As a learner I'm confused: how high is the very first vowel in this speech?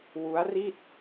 high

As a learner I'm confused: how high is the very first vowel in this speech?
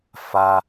low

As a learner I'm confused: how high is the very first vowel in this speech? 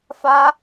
low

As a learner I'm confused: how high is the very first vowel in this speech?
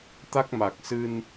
low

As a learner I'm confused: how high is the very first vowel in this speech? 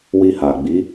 high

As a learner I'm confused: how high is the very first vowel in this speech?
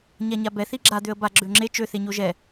low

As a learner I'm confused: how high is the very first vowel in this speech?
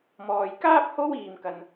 mid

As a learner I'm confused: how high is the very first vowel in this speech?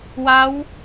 low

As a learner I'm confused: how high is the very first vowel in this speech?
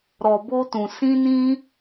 mid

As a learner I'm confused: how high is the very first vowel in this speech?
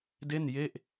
mid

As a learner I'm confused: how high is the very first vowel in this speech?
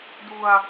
high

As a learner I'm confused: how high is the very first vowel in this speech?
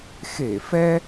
mid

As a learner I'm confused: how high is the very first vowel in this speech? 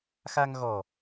low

